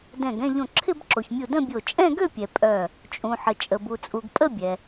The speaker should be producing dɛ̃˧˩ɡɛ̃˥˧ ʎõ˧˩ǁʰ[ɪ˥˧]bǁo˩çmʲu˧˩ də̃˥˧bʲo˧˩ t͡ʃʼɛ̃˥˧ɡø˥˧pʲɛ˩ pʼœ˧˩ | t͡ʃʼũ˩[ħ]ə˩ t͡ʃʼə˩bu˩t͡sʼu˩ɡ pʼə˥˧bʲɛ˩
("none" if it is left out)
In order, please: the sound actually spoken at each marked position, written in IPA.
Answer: ɪ˥˧, ħ

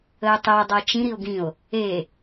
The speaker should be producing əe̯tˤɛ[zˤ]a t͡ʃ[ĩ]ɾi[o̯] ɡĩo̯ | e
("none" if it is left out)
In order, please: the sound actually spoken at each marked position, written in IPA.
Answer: dˤ, ĩ, o̯

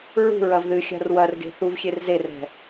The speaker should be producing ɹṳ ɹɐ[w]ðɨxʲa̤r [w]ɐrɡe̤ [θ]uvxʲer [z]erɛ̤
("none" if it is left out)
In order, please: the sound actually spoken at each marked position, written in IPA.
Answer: v, w, θ, z

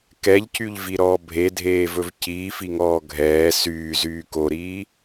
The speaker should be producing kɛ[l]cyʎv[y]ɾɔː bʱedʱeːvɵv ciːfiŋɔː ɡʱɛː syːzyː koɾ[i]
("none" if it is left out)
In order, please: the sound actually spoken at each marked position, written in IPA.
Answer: ʎ, i, iː

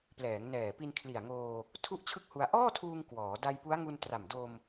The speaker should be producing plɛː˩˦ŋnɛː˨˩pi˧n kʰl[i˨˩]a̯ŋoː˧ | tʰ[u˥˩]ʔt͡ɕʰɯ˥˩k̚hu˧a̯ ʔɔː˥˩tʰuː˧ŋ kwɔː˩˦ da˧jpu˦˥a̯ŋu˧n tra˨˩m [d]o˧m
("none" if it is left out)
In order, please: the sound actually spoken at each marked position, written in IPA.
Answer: i˨˩, u˥˩, d

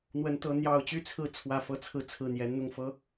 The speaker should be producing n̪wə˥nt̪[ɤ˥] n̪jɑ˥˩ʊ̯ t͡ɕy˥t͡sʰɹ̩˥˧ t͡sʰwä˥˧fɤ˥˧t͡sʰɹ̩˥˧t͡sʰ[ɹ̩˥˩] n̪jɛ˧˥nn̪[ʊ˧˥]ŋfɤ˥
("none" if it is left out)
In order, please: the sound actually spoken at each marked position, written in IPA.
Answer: ɤ˥, ɹ̩˥˩, ʊ˥˩

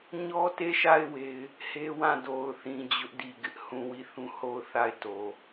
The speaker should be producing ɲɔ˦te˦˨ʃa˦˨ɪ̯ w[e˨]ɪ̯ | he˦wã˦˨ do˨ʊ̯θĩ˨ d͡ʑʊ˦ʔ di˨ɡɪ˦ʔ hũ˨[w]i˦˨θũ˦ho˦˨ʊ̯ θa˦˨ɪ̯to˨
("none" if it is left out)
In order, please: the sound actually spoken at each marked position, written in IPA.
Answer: e˦, w

